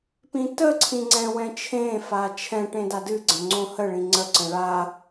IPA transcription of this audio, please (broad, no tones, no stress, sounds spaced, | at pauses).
p ĩ t ə ǀʰ ĩ ŋ͡ǀ ɛ̃ w ɛ̃ t͡ʃʰ ẽ f a t͡ʃʰ ɛ̃ ʈ ẽ d a d ɨ ɡ͡ǀ ə̃ ŋ͡ǀ õ h ə ɭ ĩ ŋ͡ǀ ə ǀ ə̃ ɭ a